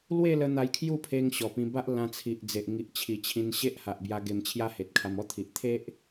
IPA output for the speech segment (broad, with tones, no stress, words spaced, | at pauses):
lwe˥˧ lə˦ n̪a˧jkʰju˥˧ pʰe˧ŋ ɕɔ˨˩pĩ˧ ba˦ʔlã˧t͡sʰi˨ʔd͡ze˨ʔ ŋi˨ʔt͡ɕʰi˨˩t͡ɕʰĩ˧nɕe˦ʔ ha˨ʔbja˧ ɡe˧mt͡ɕʰja˦he˨t̚kʰa˧m ɔ˦t̪ʰi˨ʔ t̪ʰe˦ʔ